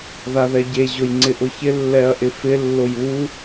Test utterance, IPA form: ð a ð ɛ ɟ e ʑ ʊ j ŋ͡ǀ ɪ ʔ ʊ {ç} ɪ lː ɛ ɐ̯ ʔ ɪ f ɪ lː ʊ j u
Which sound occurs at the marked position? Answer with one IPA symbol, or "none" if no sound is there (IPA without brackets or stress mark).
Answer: ç